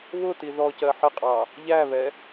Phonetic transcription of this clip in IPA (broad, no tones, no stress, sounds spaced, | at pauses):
β ʊ t i ð ɔ c ɜ ħ ɪ qʼ ɑ | ʎ æ β ɛ